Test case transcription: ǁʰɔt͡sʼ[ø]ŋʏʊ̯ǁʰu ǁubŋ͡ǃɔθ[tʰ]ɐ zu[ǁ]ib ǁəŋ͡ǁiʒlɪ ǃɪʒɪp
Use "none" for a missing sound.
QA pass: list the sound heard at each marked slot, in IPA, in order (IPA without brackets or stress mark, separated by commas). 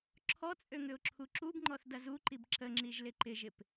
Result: ø, d, ǃ